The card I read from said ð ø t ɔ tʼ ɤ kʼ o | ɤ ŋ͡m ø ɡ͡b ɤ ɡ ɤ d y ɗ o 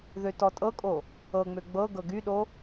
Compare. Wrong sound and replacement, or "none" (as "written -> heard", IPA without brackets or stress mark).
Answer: d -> ɡ